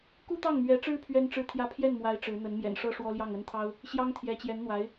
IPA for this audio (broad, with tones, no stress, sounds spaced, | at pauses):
k u˥ t̪ ɑ˥˩ ŋ m ɥ ɛ˧˥ ʈ͡ʂ ɻ̩˥ pʰ ɥ ɛ˥ n ʈ͡ʂ ɻ̩˥˧ t̪ʰ j ä˥˧ pʰ j ɛ˥˩ n m w a˧˥ ɪ̯ ʈ͡ʂ ɻ̩˧˥ n̪ ə˧˥ n m j ɛ̰˨˩ n ʂ ɤ˥ ʂ w ɔ˥ l j ɑ˥˩ ŋ ə˥ n t̪ʰ ɑ˥ ʊ̯ | ɕ j ɑ˥ ŋ t̪ʰ j ɛ˧˥ t͡ɕ j ɛ˧˥ n n̪ w a˧˥ ɪ̯